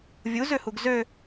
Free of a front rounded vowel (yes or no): no